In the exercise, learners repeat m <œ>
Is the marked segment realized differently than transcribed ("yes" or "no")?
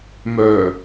no